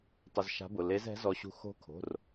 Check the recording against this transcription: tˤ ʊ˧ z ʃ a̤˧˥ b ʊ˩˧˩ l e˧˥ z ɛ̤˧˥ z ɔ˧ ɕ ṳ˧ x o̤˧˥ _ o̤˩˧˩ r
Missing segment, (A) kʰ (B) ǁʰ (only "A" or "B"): A